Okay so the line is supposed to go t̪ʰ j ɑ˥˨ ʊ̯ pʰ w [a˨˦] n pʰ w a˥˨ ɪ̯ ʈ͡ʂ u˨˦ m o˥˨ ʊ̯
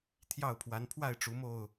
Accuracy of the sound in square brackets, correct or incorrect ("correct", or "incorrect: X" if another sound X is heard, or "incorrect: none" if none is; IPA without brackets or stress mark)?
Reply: correct